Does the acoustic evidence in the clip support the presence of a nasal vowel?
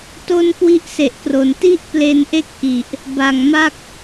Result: no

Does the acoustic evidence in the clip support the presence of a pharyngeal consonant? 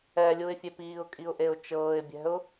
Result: no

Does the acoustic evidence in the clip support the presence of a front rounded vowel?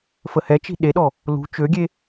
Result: yes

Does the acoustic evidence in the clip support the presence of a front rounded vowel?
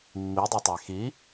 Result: no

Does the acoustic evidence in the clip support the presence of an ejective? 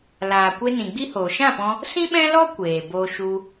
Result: no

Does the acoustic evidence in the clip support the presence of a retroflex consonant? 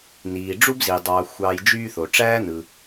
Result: yes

